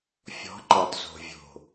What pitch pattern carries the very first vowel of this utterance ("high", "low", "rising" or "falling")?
rising